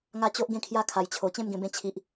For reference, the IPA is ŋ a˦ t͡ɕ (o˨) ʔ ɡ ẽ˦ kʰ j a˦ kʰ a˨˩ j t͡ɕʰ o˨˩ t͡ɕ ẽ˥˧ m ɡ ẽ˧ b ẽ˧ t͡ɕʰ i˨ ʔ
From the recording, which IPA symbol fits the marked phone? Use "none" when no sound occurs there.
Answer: o˦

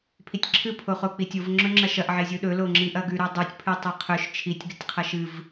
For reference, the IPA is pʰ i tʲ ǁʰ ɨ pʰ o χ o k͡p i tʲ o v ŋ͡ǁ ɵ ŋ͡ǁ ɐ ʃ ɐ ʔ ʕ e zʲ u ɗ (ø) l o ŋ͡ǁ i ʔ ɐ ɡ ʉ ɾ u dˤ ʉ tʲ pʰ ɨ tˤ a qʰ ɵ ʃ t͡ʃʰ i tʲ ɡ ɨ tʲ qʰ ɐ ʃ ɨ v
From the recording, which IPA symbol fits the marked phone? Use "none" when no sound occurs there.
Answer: ɵ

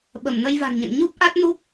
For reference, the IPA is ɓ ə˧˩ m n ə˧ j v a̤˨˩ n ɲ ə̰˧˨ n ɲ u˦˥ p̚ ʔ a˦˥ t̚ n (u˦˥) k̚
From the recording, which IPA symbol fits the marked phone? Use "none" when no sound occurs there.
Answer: u˦˥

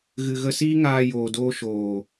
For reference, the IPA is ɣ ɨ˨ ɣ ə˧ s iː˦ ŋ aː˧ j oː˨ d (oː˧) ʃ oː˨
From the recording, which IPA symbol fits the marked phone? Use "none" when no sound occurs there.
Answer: oː˧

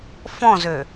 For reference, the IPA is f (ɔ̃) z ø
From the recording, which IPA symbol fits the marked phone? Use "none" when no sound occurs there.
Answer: ɔ̃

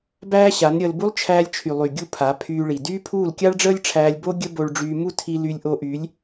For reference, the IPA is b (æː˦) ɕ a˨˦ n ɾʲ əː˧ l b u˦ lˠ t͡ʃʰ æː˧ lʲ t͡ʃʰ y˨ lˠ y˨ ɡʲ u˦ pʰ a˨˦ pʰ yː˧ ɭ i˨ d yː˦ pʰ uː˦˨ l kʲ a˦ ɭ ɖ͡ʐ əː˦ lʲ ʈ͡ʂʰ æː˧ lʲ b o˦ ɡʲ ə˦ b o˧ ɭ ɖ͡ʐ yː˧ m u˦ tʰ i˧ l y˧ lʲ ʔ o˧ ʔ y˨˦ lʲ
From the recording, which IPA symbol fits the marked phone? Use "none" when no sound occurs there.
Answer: æː˦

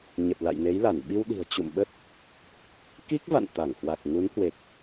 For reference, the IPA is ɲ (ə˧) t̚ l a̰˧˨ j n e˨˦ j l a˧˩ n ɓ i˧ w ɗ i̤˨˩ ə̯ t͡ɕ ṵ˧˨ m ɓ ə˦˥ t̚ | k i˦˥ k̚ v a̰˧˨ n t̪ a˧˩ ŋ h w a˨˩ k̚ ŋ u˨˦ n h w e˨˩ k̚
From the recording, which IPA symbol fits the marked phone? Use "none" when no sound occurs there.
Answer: ə˨˩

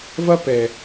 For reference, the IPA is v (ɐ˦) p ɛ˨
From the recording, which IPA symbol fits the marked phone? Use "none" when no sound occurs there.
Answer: ɐ˦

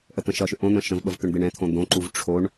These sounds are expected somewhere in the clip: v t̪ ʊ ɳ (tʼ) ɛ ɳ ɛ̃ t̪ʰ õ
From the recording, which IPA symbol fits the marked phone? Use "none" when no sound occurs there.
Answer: d̪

